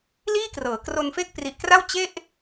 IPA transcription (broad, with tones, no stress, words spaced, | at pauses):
liː˥˩krɤː˩˦kro˧nfe˥˩k̚ pri˨˩ʔkra˥˩w t͡ɕe˥˩ʔ